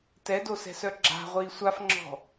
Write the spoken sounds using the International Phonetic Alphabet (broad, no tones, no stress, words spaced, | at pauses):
tɛdosɛ̤sœ ɡ͡ǁa̤ ʁʷiːsʷafŋ͡ǁɔ̤